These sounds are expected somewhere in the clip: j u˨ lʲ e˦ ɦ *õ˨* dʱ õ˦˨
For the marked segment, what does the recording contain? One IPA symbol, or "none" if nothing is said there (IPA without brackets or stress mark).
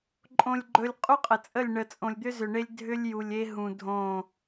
ũ˨